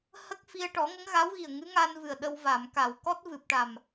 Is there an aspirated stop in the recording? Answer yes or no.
no